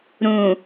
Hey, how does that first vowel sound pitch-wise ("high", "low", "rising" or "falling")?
low